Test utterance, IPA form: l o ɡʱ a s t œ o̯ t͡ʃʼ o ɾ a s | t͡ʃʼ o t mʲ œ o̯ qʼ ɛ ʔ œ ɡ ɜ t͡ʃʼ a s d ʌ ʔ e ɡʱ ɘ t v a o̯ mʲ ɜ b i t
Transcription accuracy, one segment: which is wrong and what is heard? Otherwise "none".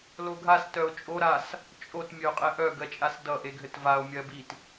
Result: none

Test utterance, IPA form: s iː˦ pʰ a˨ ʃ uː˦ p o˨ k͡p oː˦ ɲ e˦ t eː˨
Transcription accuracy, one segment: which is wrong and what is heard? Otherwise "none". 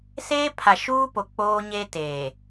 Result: iː˦ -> eː˦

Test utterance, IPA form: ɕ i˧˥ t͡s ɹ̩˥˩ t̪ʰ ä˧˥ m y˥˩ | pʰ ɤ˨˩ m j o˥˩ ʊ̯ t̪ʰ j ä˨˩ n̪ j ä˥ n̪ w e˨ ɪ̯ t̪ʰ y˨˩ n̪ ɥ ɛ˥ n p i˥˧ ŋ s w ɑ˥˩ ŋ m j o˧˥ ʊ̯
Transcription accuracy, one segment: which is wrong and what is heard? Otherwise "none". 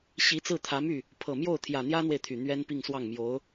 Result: none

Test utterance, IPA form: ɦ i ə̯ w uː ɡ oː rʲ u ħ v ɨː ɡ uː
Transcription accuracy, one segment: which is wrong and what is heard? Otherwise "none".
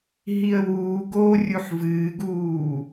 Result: none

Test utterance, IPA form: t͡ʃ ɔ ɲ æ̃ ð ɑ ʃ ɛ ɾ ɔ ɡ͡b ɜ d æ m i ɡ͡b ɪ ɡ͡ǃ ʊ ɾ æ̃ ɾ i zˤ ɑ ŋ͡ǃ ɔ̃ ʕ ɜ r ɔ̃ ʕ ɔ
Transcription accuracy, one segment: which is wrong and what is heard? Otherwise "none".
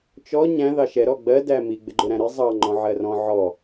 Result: none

